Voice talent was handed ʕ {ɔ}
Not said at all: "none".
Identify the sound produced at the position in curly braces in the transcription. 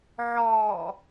ɔ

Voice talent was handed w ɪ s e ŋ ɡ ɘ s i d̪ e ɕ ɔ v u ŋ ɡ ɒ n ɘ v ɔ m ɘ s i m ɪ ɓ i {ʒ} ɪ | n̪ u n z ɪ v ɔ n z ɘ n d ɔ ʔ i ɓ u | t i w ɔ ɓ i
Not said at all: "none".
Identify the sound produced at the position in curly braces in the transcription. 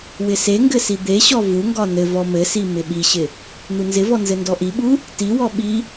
ɕ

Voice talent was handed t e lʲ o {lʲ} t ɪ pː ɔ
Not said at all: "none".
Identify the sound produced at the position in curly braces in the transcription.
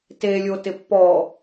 none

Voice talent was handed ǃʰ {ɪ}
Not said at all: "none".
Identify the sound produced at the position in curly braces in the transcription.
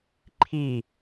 i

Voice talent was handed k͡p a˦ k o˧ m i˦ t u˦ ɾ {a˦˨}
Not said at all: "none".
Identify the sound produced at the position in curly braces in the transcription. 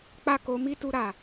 a˦˨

